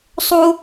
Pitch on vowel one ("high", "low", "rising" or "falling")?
high